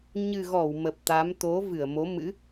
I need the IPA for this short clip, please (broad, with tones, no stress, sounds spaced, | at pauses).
ɲ ɨ˨˩ ɣ ɔ˧˩ w m ə˨˩ p̚ t̪ a˨˦ m t̪ o˨˦ v ɨ˧˩ ə̯ m o˨˦ m ɨ̰˧˥